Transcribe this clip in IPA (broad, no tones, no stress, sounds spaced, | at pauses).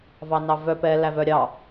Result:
v ɑ n ɑ v œ p ɛ l æ v œ ɾʲ ɑ